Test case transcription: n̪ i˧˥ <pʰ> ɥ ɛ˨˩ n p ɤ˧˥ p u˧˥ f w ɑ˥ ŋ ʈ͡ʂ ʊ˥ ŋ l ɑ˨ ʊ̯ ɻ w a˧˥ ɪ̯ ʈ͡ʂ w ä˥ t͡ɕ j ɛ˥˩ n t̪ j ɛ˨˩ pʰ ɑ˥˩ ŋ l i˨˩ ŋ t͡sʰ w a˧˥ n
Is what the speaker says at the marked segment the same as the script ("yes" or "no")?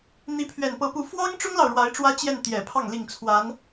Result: yes